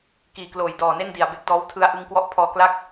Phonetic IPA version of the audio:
k iː˨˩ k l oː˨˩ j d ɔː˨˩ n e˥˩ n d i˨˩ a̯ b e˦˥ k̚ d ɔː˦˥ w tʰ ɯ˧ a̯ ʔ ɯ˧ ŋ k w ɔ˦˥ ʔ pʰ ɔː˧ k l a˥˩ k̚

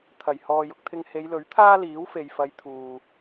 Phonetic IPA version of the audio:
t̪ʰ ɐ˨˩ j h ɔː˨ j ʊ˧ k̚ t̪ʰ ɪ˧ ŋ h e˨˧ j l ɵ˨˥ ɥ t̪ʰ aː˥ l iː˨˥ w f e˨ j f ɐ˨˧ j t̪ʰ uː˨

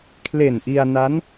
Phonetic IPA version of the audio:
kʰ l e˨˩ n ʔ i˧ a̯ n a˦˥ n

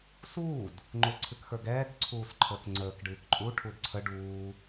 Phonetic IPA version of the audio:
s uː d | ŋ͡ǃ o ǀʰ ɨ k x ə˞ ɡ ɛː k ǀʰ uː s ǃʰ əː k ŋ͡ǀ əː k ɖ ɨː k ǃʼ u ʈʰ u d ǀʰ ə ɖ uː

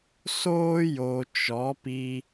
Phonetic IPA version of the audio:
s oː˦ j o˨ t͡ʃ ɔ˨˦ p i˧

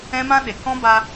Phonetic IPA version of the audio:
ɛ̃˦ m ã˦ ɗ e˨ k ɔ̃˦ b a˧

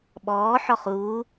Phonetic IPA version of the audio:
ɓ ɔː ħ ɔ χ uː

